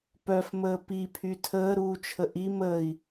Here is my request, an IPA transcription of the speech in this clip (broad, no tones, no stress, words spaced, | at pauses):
pœfməː pipʰy tʰəːɾuːt͡ʃʰə ʔi məːi̯